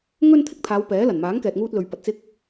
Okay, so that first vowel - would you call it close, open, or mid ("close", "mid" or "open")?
mid